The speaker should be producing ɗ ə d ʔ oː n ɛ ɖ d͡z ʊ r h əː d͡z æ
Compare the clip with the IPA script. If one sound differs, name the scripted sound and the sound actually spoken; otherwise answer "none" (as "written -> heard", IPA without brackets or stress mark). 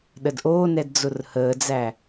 ɖ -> d